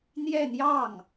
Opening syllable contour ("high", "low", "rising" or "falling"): falling